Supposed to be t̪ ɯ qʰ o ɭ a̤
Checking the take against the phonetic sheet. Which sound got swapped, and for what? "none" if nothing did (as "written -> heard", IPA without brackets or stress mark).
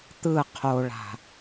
none